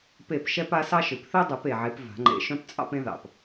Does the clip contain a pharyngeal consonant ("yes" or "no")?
yes